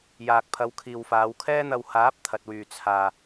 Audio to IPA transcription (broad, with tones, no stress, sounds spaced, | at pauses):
j aː˨ k̚ pʰ ɐ˨˧ w kʰ iː˨ w f aː˨˧ w kʰ ɛː˥ n̪ ɐ˧ w h aː˨˥ p̚ t̪ʰ ɐ˨ t̚ w yː˨ t͡sʰ aː˨